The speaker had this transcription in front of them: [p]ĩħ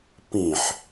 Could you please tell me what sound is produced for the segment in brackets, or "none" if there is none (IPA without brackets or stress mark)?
p